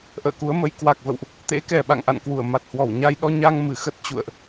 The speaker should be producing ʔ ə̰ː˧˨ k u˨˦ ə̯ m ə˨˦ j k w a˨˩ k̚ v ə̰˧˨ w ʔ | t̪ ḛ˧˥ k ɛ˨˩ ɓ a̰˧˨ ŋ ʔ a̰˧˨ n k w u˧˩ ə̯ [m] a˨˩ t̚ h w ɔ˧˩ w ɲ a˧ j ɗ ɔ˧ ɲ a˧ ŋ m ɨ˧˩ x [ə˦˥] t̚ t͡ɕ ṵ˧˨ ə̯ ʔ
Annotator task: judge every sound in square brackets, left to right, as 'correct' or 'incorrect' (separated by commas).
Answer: correct, correct